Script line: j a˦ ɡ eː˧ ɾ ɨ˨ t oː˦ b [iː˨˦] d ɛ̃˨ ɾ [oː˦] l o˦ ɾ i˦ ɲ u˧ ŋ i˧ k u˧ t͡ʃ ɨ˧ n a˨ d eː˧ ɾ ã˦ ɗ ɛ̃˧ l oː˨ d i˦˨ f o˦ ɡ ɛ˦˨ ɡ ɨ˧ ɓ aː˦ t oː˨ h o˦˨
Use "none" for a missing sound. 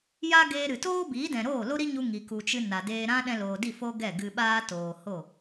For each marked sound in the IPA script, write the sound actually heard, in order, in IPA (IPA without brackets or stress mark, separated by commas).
iː˨˦, oː˦˨